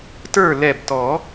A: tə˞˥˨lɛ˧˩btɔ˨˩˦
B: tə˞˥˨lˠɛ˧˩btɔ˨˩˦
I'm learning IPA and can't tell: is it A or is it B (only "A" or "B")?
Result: A